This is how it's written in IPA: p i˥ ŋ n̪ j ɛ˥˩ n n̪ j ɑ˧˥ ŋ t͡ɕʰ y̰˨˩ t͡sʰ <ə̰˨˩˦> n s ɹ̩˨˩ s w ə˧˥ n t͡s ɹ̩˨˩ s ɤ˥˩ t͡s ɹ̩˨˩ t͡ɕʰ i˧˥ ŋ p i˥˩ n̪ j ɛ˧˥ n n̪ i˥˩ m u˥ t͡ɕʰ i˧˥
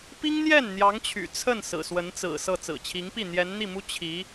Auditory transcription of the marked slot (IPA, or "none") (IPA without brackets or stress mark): ə˥˩